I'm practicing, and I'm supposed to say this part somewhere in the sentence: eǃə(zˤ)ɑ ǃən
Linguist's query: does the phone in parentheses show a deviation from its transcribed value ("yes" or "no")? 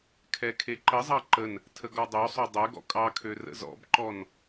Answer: no